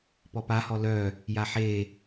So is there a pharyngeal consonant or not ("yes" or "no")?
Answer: yes